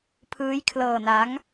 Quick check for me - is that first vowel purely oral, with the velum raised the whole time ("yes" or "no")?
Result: yes